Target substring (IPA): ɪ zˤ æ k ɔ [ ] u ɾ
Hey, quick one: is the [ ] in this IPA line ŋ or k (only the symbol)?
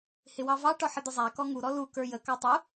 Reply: ŋ